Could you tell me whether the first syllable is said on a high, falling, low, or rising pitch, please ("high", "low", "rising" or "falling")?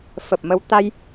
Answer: low